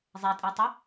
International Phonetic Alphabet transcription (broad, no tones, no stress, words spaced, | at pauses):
zˤɛtʼetˤʉ